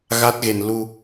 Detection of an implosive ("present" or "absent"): absent